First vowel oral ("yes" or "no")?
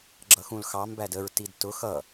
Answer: yes